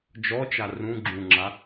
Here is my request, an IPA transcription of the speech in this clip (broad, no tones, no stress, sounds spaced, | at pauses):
d͡ʒ ɔ t͡ʃ a r ũ ɡ͡ǁ ũ ŋ͡ǁ a